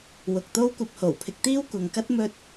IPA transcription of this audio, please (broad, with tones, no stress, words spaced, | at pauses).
wʊ˨k̚t̪o˥w kʷɐ˧p̚ho˨˩wpʰɪ˧k̚t̪iː˥w kʷɐ˨ŋkɐ˥t̚ mɵ˧t̚